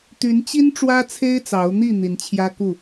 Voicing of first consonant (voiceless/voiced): voiceless